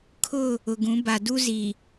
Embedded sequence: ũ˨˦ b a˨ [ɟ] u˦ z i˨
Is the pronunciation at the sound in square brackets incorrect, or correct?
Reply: incorrect